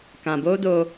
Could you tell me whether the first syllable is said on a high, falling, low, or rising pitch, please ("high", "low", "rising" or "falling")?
low